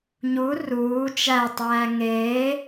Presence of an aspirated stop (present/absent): absent